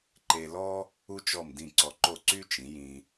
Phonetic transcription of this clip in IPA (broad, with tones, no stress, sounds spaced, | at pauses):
ǃ e˧ l ɔ˥ | u˥ t͡ʃ ɔ˥˩ m d ĩ˥˩ ǀ ɔ˧ ǃ o˥˩ ǀ y˥ t͡ʃ ĩ˩˥ j ĩ˧